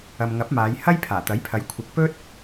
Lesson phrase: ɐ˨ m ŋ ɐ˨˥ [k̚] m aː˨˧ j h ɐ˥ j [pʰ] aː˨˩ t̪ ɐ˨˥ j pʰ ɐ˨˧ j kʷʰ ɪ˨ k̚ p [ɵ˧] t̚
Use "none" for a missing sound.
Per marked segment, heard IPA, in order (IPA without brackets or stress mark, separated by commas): p̚, pʰ, ɵ˥